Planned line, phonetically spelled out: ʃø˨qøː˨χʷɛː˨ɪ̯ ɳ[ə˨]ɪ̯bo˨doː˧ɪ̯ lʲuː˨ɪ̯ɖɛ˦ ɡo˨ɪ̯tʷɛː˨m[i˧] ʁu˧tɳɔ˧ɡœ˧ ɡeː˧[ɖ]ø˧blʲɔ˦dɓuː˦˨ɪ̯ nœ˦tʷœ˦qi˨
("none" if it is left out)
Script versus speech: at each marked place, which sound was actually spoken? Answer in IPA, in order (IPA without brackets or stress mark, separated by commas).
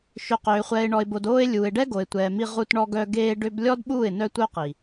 ɔ˨, i˧, ɖ